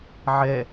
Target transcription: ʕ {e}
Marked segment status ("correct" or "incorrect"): incorrect